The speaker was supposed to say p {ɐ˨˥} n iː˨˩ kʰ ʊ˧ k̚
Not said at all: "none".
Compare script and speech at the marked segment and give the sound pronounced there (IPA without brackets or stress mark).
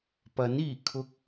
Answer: ɐ˨˥